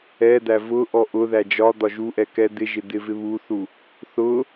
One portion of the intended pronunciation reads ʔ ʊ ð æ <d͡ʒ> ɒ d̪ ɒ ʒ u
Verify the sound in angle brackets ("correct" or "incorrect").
correct